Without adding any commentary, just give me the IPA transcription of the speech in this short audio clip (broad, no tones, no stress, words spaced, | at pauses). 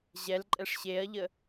ʑɛlǃʼɛʂ ɕeɐ̯ʎə